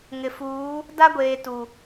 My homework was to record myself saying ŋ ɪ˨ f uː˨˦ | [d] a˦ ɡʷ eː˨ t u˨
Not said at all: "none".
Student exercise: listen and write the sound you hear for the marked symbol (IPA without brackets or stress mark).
d